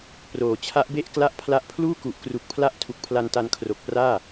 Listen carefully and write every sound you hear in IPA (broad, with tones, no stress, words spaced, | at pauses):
proː˩˦t͡ɕʰa˦˥ʔbe˥˩ʔ kla˥˩ʔpʰla˦˥ʔ pʰluː˥˩ku˨˩ʔkru˨˩k̚pʰla˦˥ʔ tʰu˨˩k̚pʰla˧nta˧n kʰro˨˩k̚praː˥˩